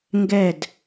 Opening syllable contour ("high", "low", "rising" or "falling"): falling